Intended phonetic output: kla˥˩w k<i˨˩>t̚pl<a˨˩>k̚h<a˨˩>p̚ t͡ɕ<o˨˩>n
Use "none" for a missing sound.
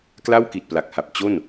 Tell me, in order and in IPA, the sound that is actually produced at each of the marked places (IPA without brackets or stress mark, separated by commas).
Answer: i˨˩, a˨˩, a˨˩, o˥˩